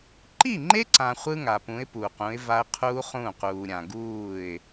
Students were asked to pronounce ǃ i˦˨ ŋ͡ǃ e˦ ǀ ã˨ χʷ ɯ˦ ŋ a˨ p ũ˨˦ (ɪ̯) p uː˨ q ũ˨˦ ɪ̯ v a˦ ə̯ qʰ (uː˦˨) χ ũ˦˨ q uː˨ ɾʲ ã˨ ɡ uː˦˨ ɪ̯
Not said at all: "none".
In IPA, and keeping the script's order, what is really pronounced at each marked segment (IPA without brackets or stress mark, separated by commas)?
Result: ɪ̯, uː˦